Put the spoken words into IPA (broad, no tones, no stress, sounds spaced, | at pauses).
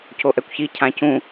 c o ʔ ɛ kʷ ç i cʰ ã c ũ